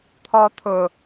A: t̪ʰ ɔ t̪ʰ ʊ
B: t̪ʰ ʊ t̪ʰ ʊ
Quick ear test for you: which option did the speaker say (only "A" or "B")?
A